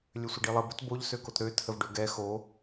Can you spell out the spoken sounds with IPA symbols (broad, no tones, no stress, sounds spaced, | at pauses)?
lʲ ø sʷ ə ɖ i lˠ ə b ə t b o ʎ s ø k o t ɾ ø tʰ ə v ɖ ø ɡ ɛ x o